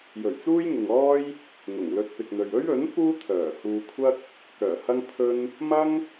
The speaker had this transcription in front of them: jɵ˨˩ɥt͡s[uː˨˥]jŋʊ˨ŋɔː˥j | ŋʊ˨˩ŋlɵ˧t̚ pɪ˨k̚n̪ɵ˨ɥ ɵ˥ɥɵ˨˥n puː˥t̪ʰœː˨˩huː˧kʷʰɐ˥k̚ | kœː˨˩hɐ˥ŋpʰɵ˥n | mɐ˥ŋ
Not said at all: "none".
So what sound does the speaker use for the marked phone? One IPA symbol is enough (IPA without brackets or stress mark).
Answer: uː˥